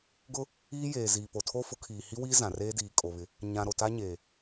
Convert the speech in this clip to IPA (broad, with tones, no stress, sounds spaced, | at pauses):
ɡ ʊ˦ | iː˦ j eː˨ z iː˨ p o˨ tʰ o˦ f ʊ˨˦ kʰ iː˨ h i˦ w iː˦ z ã˨ r eː˦ d iː˨ kʼ o˨ β ɪ˨˦ | ɲ ã˨ ɾ o˨ t a˦ ɲ eː˨